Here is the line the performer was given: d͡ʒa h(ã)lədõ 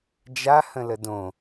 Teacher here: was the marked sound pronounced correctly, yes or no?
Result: no